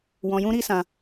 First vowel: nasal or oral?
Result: nasal